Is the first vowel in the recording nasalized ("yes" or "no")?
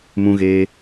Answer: yes